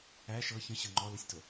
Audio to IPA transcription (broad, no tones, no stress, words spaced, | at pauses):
æ ʃɤ çə̃ɕɤ ŋ͡ǃɔləsʲto